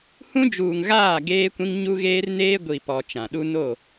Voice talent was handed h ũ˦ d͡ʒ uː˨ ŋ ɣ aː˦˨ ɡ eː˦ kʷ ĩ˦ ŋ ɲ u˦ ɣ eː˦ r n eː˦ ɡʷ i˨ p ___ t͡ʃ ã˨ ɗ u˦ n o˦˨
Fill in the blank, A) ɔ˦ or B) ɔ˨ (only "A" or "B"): B